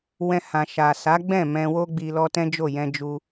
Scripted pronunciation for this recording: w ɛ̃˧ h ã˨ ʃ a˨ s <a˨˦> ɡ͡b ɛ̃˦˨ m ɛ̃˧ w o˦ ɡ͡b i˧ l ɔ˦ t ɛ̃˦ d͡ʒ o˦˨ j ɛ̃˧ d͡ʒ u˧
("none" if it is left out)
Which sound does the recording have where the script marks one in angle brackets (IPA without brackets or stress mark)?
a˨˦